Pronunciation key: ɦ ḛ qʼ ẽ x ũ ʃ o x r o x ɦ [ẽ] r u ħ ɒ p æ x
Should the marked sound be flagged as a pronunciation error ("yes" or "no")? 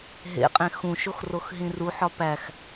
yes